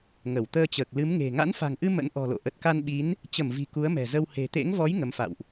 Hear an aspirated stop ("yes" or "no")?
no